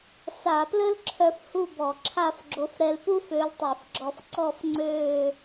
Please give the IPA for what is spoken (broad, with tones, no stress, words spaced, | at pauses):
sa˧˩˧plə˥lǁʰœ˧f hu˥˧bɔ˧˩˧ǁʰa˥˧fɡ͡ǁo˧˥f ɾɛ˧lpu˥f ø˧˥ltˤi˧˩˧fɡ͡ǁɔ˧fǀɔ˥˧f ŋ͡ǀøː˥˧